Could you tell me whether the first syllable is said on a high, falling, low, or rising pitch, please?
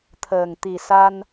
low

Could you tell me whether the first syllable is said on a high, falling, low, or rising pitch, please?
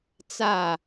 falling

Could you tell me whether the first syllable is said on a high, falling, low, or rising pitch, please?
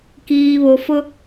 low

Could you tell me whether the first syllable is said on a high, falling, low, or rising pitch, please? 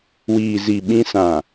low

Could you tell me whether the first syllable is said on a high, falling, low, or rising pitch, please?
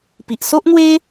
low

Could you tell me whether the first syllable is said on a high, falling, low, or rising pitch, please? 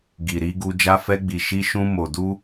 low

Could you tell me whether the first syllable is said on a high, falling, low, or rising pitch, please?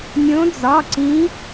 rising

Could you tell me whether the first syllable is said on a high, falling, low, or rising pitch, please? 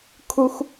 low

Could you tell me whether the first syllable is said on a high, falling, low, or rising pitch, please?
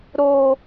high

